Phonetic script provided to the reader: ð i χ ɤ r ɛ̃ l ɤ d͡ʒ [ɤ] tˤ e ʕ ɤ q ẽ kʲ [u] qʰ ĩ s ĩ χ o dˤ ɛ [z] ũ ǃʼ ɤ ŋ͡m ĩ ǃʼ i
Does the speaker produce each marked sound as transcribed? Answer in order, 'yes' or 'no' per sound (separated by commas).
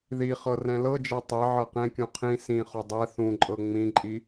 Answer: yes, no, no